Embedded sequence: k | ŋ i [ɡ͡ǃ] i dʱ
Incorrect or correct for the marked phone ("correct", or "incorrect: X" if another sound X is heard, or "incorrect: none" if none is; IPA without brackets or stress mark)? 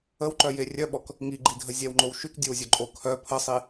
correct